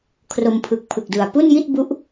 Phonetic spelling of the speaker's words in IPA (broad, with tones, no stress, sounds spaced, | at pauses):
kʰ r o˧ m pʰ ɯ˨˩ k̚ pʰ ɯ˨˩ k̚ d ɯ˨˩ a̯ p u˥˩ n j i˥˩ t̚ b u˦˥ ʔ